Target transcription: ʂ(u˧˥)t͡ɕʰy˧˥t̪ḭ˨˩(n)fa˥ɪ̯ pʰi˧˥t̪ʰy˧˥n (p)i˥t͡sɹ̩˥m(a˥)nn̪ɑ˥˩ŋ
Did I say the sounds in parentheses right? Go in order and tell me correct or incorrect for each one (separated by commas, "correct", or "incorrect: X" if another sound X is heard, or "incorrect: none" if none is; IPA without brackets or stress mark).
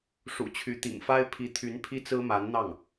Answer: incorrect: ṵ˨˩, incorrect: ŋ, incorrect: pʰ, incorrect: a˧˥